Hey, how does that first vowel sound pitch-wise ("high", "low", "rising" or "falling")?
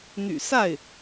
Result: low